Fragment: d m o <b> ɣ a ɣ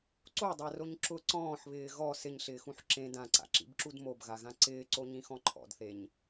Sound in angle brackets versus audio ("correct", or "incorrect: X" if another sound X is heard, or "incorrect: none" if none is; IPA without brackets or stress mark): correct